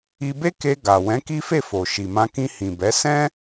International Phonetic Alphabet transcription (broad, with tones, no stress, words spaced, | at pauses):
i˧be˦ke˧ ɡa˨ wɛ̃˨˦ki˦fe˦˨ fo˨ʃi˨ mã˧kĩ˧ hĩ˨bɛ˨˦ sɛ̃˦